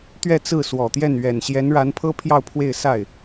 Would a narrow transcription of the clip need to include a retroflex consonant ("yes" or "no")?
yes